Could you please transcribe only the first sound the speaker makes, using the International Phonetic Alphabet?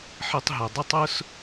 ħ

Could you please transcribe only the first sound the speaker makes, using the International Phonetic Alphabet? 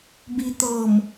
b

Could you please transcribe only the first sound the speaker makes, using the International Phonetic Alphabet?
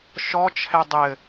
ʃ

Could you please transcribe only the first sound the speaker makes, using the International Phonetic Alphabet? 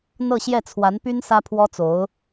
n̪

